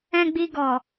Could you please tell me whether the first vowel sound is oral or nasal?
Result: nasal